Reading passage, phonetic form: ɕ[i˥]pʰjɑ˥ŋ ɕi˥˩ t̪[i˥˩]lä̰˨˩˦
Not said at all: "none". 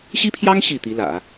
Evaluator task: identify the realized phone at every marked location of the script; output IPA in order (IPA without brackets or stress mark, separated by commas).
i˥, i˧˥